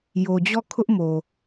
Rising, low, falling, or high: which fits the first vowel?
low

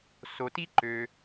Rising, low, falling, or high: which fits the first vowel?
low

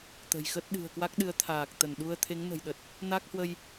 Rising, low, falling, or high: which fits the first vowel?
low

